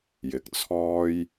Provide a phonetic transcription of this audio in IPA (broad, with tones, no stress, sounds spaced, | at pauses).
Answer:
j ɪ˨˥ k̚ t͡sʰ ɔː˥ j